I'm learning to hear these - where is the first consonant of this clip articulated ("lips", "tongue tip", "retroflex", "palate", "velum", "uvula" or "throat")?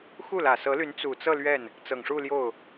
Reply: velum